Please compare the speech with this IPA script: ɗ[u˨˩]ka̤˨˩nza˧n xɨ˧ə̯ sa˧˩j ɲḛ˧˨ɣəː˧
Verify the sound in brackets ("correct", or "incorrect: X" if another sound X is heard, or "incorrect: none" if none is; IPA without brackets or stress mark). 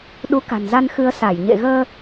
incorrect: u˨˦